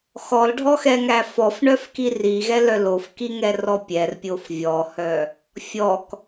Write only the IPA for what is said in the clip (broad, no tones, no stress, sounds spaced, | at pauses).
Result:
x ɔ l ɖʱ ɔ x ɛ ŋ æ f ɔ f ɳ œ f k i r i ɣ ɛ l œ l o f k i ŋ ɛ r ɔ pʲ ɛ r pʲ o f vʲ ɔ h œ | fʲ ɔ k